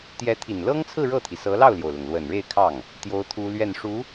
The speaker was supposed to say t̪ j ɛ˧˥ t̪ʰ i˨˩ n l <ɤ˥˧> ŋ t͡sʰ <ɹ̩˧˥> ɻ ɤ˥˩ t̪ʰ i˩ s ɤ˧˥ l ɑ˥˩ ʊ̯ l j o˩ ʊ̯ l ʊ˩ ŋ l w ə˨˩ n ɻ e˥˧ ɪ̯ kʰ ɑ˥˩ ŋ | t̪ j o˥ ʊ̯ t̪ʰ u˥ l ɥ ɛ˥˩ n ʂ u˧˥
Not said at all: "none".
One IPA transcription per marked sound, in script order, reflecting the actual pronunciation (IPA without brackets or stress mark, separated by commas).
ɤ˥, ɹ̩˥˧